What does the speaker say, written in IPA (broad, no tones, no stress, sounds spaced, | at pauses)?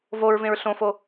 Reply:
v o ɹ v ẽ ɹ ɬ õ f o